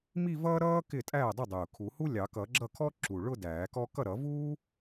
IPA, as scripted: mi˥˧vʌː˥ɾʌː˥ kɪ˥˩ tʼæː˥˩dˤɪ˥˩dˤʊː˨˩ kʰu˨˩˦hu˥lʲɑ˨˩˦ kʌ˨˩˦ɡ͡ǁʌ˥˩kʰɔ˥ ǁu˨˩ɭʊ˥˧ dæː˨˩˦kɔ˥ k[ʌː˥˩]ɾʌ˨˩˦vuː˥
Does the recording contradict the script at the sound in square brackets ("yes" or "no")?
yes